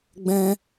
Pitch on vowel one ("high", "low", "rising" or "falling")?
high